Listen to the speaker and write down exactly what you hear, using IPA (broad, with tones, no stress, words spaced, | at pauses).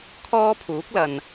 kʰɔː˥pʰuː˨˥k̚lɐ˨n